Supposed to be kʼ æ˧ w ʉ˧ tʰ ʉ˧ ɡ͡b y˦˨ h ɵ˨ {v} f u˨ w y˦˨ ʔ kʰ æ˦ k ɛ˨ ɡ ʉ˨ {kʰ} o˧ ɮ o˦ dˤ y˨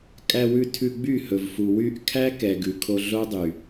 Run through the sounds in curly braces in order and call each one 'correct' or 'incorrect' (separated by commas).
correct, correct